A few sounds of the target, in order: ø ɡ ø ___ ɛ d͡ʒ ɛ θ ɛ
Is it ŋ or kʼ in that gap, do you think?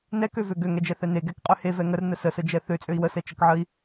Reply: ŋ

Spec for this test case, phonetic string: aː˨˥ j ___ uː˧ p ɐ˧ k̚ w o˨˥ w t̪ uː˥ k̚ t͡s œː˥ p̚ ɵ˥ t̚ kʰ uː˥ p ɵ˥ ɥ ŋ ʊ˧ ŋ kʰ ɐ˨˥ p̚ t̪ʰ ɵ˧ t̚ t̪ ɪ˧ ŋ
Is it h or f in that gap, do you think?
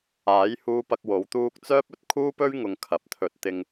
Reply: h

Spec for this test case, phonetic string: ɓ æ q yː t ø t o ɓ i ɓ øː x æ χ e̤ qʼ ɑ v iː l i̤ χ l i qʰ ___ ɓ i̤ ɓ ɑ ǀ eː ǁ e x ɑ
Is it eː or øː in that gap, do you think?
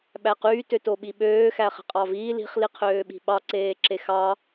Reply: øː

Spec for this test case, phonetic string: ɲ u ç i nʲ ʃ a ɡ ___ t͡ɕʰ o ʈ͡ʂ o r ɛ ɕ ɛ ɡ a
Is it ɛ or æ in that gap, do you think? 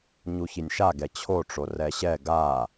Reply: ɛ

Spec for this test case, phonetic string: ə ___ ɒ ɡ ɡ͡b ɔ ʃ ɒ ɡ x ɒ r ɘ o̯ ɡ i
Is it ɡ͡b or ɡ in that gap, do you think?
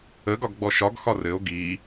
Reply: ɡ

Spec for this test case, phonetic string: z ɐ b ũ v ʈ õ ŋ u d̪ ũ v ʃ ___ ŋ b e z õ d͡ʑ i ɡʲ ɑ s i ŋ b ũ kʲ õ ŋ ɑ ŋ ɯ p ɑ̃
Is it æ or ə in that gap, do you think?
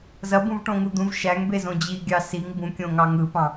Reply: æ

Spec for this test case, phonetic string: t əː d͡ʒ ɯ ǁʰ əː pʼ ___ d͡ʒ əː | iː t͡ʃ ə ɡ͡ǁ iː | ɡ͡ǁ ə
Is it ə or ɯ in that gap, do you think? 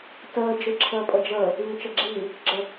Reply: ə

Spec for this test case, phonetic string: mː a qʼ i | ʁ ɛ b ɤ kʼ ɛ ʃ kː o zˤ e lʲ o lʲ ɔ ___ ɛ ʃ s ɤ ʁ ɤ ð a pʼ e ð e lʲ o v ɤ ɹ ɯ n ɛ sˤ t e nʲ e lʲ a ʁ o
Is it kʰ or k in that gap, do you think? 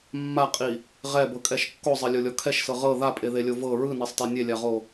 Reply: kʰ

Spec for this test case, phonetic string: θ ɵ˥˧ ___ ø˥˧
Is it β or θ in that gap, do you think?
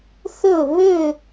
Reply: β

